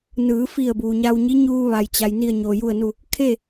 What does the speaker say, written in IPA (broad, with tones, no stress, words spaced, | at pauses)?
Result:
nɯː˩˧fi˧˩ə̯ buː˩ɲa˧wɲi˧˥ɲuː˧ ʋa˩jt͡ɕa˩j ni˧˩ə̯ɲo˩ju˧˩ə̯nu˧˩ | kʰe˥˨